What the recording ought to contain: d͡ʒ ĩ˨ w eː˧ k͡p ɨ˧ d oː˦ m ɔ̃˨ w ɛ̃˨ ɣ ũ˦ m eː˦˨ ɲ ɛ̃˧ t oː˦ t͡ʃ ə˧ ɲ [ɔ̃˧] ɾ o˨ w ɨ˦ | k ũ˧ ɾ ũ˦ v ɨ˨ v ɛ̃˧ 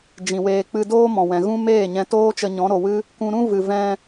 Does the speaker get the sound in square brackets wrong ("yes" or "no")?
yes